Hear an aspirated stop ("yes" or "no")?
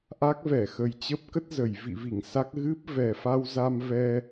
no